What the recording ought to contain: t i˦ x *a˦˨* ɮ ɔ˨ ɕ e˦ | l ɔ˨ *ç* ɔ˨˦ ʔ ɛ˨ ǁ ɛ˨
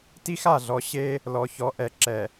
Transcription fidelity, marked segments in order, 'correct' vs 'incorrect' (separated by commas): correct, correct